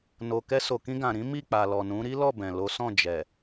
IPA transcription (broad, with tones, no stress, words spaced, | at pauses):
no˨kɛ˧ so˨kĩ˧ɡã˨ɾĩ˨˦ mi˦˨k͡pa˨lɔ˨nũ˨˦ ɾi˦lɔ˦˨ bɛ̃˨ lo˨˦sɔ̃˦˨ d͡ʒɛ˨